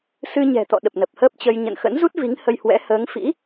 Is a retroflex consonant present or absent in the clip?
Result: absent